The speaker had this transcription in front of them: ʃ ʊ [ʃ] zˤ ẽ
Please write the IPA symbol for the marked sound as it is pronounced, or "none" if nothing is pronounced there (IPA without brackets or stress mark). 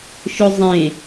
none